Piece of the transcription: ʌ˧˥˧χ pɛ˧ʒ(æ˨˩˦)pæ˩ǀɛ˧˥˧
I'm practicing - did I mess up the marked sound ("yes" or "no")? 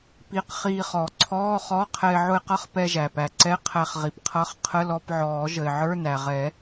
yes